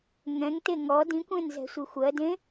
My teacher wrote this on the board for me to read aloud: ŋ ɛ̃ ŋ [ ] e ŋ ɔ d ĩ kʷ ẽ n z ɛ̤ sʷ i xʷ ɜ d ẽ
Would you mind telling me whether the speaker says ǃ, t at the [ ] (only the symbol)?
t